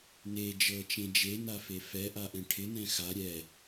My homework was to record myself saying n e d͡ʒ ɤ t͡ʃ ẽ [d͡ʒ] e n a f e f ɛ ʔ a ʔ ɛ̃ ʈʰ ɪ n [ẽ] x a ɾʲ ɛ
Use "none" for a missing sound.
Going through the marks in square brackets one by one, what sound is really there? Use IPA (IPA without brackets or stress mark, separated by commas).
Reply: d͡ʒ, ɛ̃